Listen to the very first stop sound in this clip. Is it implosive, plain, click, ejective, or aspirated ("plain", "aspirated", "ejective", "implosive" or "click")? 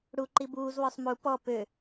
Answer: click